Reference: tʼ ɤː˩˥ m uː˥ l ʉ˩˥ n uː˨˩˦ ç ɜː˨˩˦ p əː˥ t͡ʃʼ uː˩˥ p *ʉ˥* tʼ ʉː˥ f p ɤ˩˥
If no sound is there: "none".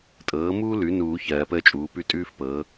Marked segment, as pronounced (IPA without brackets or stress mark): ʉ˥